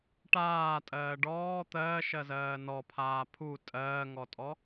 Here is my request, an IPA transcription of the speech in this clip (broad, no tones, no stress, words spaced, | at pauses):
ʈaːtʼɜː ɖɔː t̪ɜːʃɜzɜː nɔpʰaː pʰu tʼɜːŋɔtʼɔ